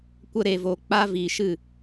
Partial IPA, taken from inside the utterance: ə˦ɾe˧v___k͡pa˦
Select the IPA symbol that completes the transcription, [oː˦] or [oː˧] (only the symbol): oː˧